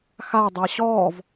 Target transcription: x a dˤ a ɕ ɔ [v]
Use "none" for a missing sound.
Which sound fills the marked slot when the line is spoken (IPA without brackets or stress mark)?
v